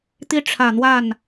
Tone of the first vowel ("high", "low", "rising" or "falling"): falling